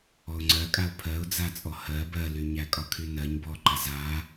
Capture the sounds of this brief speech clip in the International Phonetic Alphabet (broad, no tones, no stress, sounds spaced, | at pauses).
ɔ ʊ̯ ŋ͡ǀ ɜ kʼ a ʊ̯ pʰ ɜ ʊ̯ d͡z a t͡sʼ ɔ h ɜ b ɜ l y ɲ æ kʼ ɒ kʰ y n ɜ ɲ b ɔ ǃ a z a